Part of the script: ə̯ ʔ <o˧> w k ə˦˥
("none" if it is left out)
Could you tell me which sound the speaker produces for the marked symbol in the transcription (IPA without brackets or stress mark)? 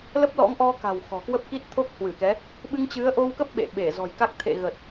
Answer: o˧